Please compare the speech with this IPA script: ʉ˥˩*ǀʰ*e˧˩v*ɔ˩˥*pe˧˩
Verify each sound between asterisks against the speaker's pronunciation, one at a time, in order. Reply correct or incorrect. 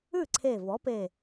correct, correct

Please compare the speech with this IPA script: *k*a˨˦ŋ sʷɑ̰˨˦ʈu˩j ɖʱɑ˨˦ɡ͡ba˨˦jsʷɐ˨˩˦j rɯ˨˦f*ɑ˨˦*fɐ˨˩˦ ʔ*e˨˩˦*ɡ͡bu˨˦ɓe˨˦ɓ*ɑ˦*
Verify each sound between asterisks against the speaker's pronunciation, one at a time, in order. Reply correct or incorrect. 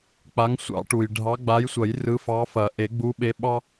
incorrect: k͡p, correct, correct, correct

